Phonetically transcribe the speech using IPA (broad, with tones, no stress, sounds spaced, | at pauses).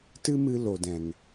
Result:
t ɨ˦ m ɨ˧ l o˨ d ɛ̃˨ ŋ